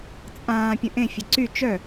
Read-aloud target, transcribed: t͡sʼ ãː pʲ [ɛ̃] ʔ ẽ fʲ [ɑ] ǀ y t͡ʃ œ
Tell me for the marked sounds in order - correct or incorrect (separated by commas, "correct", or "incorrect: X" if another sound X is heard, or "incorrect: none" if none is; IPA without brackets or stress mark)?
incorrect: ə̃, incorrect: ə